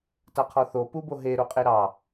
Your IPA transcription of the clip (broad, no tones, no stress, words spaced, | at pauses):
taqʰɔθo puboɦe ɾoqʼeɾɑ